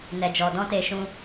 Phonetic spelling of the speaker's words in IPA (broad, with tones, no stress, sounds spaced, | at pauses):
n ɛ˨ d͡ʒ ɔ˨ d ɔ̃˧ t e˨ ʃ ũ˧